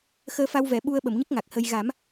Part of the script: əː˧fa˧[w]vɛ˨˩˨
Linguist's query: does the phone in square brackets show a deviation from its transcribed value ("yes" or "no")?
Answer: no